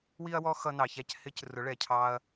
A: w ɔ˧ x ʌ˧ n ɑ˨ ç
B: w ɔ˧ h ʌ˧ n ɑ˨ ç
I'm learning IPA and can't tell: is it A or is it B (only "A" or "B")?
A